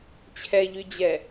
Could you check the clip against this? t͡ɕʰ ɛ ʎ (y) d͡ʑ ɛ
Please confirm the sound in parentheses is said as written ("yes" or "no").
yes